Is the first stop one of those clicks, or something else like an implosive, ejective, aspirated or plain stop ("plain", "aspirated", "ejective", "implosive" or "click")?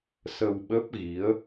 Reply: implosive